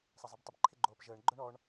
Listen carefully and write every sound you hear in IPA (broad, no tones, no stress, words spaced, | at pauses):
sˤɐzˤebtˤɪb ǃʰɪɡ͡ǃoːpʒəːɳ ɡ͡ǃœɳɔɳ